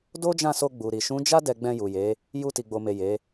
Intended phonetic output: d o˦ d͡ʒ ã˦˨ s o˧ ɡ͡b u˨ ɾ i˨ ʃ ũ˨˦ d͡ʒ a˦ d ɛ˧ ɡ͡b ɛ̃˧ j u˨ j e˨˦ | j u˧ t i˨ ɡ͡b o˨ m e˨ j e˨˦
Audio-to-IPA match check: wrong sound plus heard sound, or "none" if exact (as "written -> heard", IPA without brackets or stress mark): none